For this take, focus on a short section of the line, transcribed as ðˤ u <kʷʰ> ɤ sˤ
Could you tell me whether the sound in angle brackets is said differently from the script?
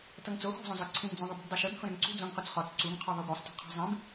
yes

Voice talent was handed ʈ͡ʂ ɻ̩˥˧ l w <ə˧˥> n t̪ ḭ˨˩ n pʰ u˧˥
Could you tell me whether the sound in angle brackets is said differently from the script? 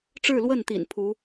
yes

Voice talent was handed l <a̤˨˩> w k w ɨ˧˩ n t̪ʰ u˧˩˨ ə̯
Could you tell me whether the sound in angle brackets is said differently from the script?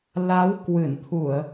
yes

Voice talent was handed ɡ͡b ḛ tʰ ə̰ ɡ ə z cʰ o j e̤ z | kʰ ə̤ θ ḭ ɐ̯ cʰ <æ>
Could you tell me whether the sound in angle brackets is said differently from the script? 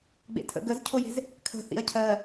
yes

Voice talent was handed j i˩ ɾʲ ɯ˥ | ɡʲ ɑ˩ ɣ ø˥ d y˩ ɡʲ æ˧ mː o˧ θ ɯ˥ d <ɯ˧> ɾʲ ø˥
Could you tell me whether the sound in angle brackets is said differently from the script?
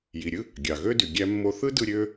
no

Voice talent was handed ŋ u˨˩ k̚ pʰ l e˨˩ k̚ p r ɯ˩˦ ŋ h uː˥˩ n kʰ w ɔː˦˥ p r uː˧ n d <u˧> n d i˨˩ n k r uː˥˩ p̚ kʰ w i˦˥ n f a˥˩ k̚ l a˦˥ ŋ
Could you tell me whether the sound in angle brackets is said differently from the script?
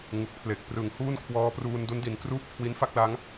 yes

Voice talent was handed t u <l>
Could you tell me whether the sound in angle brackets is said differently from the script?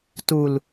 no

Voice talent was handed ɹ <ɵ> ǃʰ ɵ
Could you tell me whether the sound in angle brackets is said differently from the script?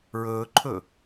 yes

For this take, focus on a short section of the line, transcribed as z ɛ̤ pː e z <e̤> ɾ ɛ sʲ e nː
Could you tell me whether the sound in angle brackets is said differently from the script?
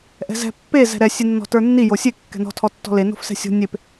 yes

